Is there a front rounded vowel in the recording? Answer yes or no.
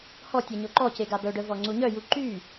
yes